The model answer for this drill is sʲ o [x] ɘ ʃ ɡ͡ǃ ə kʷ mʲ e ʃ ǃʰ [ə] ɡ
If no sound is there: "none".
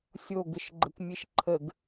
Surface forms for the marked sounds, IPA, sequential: ɡ, ə

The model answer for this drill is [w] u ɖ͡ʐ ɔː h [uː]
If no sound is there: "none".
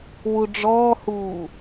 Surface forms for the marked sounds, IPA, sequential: w, uː

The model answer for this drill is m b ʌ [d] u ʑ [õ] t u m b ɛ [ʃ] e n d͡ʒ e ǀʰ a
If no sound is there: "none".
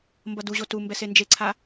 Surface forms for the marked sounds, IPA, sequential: d, o, s

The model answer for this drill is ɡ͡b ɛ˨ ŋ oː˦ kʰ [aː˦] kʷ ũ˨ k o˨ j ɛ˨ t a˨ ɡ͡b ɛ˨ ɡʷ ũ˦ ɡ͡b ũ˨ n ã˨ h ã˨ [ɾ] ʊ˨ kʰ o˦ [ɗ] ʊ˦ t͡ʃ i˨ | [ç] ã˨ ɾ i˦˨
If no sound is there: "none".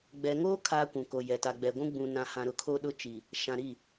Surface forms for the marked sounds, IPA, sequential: aː˦, ɾ, ɗ, ʃ

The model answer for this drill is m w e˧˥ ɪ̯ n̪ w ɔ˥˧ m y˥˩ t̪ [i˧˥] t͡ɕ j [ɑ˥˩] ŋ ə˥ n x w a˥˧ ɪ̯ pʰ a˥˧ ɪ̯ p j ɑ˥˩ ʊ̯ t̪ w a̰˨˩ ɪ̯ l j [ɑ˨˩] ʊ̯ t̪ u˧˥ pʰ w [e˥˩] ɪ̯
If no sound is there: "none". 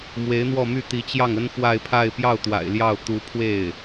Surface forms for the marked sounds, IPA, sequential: i˧˥, ɑ˥˩, ɑ˥˩, e˥˩

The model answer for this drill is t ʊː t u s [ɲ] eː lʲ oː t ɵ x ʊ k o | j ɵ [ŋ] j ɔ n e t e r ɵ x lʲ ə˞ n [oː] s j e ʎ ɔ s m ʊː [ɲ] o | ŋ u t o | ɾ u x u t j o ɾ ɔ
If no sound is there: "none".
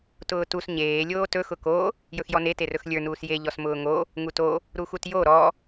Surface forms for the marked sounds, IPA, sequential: ɲ, x, uː, ŋ

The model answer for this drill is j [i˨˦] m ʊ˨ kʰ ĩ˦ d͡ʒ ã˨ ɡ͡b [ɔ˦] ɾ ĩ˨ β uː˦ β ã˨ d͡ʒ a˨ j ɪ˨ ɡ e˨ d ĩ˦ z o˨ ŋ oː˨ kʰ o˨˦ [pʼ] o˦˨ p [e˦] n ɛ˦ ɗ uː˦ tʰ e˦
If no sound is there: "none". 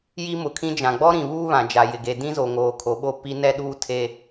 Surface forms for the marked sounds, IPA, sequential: i˦, ɔ˦, ɓ, i˦

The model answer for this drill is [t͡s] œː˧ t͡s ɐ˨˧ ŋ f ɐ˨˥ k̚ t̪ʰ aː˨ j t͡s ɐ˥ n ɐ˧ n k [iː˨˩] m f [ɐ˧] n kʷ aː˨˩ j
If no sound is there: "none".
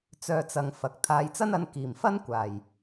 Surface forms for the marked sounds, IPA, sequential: t͡s, iː˨˩, ɐ˥

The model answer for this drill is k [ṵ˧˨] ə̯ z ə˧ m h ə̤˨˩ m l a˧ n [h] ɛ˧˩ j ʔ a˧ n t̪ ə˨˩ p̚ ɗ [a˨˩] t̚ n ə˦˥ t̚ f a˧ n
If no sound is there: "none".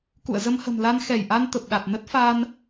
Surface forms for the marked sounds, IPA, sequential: ṵ˧˨, x, a˨˩

